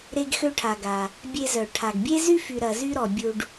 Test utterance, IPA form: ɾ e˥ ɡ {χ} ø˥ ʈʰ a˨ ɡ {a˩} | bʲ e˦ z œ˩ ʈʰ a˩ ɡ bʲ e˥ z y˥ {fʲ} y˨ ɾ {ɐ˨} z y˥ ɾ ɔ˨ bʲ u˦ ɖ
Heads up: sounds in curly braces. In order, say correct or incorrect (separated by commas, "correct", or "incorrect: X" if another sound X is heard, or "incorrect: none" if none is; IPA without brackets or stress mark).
incorrect: x, correct, incorrect: f, correct